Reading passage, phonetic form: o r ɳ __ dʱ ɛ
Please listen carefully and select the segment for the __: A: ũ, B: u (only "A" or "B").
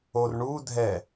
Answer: B